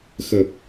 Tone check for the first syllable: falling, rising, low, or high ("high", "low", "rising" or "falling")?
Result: low